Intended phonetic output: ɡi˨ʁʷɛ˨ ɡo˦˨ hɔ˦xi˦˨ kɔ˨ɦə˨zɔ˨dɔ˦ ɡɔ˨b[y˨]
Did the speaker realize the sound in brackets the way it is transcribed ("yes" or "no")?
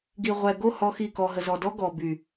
yes